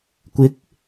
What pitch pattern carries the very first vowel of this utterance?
rising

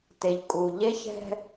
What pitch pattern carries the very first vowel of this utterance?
low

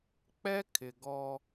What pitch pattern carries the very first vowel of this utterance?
high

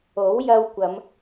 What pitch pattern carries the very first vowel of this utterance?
rising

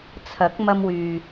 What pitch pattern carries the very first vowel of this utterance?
rising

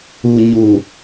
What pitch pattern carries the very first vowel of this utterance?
low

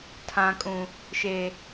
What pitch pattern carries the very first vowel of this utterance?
low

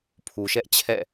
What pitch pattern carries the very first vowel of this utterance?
low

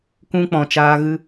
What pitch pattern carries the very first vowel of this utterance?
high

